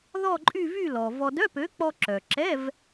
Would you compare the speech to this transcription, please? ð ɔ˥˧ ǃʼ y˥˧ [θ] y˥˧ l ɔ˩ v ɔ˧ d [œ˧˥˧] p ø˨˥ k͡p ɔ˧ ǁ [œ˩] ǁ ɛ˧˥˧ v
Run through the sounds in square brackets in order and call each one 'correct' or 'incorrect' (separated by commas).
incorrect, correct, correct